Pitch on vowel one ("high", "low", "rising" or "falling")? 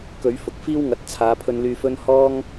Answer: rising